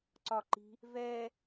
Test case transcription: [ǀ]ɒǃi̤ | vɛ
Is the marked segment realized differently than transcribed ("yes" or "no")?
no